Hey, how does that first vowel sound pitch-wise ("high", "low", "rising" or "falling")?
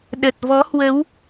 low